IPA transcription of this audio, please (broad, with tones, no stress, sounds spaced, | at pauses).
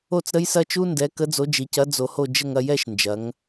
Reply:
o˥˧ t͡s ɾ ə˦˥ j s ɐ˦˥ t͡ʃ u˦˥ n d ɛ˨˥ k ə˨˥ d͡z o˨˥ d͡ʒ i˩˧ c ɐ˨˥ d͡z o˧ h o˥˧ d͡ʒ ə˥˧ ŋ ɐ˥˧ j ɛ˥˧ ʃ n d͡ʒ ɐ˩˧ ŋ